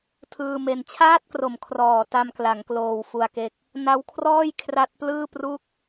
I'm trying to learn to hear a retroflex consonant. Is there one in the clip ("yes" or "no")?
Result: no